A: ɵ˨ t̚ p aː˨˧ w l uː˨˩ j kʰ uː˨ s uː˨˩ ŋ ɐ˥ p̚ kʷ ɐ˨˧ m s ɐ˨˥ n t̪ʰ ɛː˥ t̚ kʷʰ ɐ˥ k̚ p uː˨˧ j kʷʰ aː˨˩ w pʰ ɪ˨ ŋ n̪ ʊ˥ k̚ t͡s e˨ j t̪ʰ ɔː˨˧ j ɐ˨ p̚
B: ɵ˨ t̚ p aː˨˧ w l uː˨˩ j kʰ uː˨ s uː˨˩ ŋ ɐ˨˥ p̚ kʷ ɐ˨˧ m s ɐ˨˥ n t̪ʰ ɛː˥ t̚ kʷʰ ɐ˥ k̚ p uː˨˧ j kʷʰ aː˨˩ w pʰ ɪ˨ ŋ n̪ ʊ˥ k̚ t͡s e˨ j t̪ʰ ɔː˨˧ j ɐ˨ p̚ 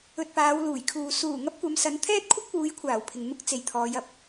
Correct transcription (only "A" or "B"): A